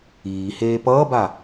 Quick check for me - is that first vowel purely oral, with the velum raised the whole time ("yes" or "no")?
yes